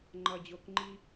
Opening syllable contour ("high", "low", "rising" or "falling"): low